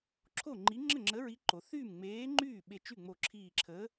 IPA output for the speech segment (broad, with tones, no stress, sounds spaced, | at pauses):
ǁʰ o˥˩ ŋ͡ǃ i˨˥ ŋ͡ǁ ə˥˩ ŋ͡ǁ ə˨˥ ɹ i˨˥ ǃ o˩ θ yː˥˩ m ŋ͡m eː˨˥ ŋ͡ǃ yː˥˩ ɓ e˧˩ t͡ʃ y˥˩ ŋ͡m o˧˩ ǁʰ iː˧˩ ǁʰ ə˨˥